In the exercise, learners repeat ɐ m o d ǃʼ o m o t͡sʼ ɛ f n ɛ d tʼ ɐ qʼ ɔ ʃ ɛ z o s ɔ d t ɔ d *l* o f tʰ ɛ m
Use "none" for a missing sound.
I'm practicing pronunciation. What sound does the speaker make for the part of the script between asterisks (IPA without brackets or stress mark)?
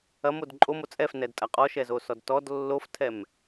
lː